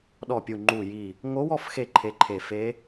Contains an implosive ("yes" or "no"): yes